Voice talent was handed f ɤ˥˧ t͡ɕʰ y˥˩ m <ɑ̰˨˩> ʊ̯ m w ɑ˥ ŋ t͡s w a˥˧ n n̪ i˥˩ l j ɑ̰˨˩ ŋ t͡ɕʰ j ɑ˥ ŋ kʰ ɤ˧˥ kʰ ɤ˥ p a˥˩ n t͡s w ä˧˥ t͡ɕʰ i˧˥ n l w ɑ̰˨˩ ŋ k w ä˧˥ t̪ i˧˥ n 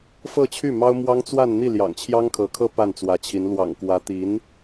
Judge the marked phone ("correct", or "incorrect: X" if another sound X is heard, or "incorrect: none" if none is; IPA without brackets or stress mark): incorrect: ɑ˥